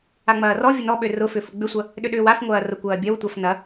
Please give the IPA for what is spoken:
a ŋ͡m ɐː r ɔ vʲ ʊ n ɔ ɓ ø r ʊ f ʏ f ʊ ɡ͡b ʏ sʷ ɐ | ɗ ʏ ɗ ʏː w a f ŋʷ ɐː r ʊ kʷ ɐː bʲ ɐ w tʷ a f n ɐ

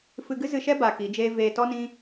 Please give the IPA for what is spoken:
f ɨ˧ ɡ ɨ˦ z ɨ˧ ʃ ɛ˦ b a˧ k i˨˦ d͡ʒ eː˦ v eː˧ t ɔ˦ n ĩ˦

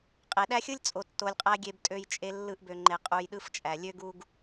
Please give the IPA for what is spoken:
qʼ e˨ ɗ æ˦ xʲ ɯ˦ lʲ t͡sʼ o˨ tː o˨ lʲ qʼ æ˦ ɡʲ e˦ b tʼ ø˦ j t͡ʃʼ e˦ lː ɯ˦ ʔ b ø˨ ŋ͡ǃ e˨ qʼ u˨ j ɗ ɯ˦ f t͡ʃʼ æ˨ lʲ ø˦ ɡ u˨ ɡ

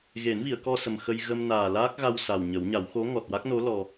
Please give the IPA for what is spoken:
ɣ e˨˩˦ n v i˨˩˨ ə̯ k ɔ˧ s ə˨˩ m x ə˧ j ɣ ə˧ m n aː˨˩ l aː˦˥ k̚ ɣ a˧ w s a˨˩ w ɲ ə˨˩˦ w ɲ a˨˩˦ w x o˧˥ ŋ ɔ˨˩ t̚ w a˦˥ k̚ n o˧˥ l ɔ˧

